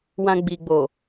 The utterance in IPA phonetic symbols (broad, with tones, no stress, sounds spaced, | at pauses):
w ã˧ ɡ͡b i˨ ɡ͡b o˨